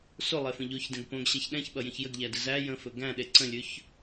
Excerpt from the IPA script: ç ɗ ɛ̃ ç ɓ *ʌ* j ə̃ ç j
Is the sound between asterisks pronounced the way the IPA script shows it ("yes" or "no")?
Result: yes